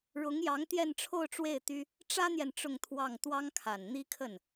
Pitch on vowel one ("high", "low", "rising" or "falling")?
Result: rising